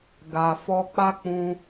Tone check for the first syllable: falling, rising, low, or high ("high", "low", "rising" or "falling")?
low